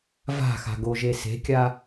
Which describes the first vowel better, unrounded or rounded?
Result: unrounded